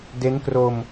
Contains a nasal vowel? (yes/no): no